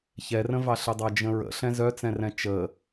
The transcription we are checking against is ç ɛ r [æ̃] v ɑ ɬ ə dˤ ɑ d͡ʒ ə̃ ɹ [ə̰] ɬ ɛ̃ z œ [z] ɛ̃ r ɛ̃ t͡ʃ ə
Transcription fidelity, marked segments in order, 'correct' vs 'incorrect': incorrect: ə̃, correct, incorrect: t͡s

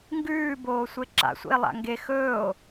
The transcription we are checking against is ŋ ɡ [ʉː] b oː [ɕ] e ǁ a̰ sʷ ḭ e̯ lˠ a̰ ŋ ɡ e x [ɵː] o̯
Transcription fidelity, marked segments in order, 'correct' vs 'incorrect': correct, incorrect: sʷ, correct

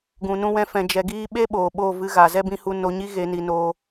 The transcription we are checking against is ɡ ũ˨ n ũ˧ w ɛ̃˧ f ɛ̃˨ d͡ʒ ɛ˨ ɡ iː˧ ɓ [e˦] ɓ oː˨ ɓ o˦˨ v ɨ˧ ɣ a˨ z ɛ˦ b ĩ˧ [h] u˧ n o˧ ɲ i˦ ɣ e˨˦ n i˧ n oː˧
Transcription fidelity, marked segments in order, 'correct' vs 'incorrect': correct, correct

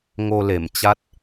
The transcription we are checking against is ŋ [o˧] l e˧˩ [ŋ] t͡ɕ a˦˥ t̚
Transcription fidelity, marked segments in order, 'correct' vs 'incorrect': correct, incorrect: m

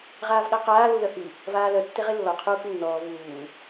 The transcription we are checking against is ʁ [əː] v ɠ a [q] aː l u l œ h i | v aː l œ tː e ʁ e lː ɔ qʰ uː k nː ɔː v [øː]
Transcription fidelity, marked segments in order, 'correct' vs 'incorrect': incorrect: aː, correct, incorrect: uː

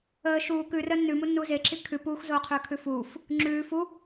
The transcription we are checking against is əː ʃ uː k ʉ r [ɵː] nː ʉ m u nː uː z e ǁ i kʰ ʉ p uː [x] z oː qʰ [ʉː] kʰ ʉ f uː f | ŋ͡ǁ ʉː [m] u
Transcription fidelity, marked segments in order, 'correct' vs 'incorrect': incorrect: əː, correct, correct, incorrect: f

